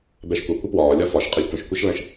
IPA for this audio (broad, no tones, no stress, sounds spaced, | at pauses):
b ɛ ʃ kʷ ə kʷ ə p w ɒː lʲ ɒ f ɒ ʃ qʼ ɛ lʲ kʷ ə̃ ʃ kʷ e ʃ l ə̃ ʃ